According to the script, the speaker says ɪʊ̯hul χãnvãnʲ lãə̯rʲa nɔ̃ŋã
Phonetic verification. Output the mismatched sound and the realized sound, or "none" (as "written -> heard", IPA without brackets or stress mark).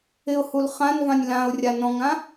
ə̯ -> ʊ̯